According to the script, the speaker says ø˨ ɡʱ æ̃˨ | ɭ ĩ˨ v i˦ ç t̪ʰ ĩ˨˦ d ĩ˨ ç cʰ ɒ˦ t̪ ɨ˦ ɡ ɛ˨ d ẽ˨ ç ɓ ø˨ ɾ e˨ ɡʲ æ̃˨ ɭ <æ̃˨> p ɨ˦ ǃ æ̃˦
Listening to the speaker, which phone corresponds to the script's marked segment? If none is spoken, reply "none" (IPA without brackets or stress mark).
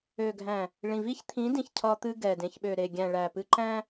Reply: æ˨